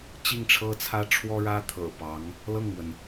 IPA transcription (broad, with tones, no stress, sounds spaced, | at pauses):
t͡ɕ i˥˩ ŋ ʈ͡ʂʰ ɤ˥ t͡sʰ ä˥ ʈ͡ʂʰ w ɔ˥ ɻ ä˥ t̪ʰ ɤ̰˨˩ p ɑ˧˥ ŋ | l ɤ˥˩ ŋ m w ə˩ n